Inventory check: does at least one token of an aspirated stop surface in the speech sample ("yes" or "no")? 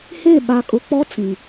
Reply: no